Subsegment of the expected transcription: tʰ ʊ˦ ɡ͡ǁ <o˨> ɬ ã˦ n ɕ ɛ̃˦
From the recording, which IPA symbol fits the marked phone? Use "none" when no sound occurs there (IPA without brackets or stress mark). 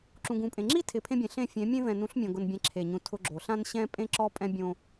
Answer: o˨